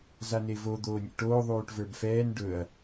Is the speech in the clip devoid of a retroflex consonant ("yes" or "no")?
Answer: no